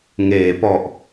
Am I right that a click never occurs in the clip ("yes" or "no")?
yes